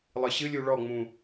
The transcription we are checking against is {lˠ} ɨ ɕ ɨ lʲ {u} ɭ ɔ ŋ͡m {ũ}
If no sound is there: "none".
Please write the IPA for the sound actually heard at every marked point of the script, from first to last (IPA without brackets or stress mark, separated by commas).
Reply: lˠ, u, ũ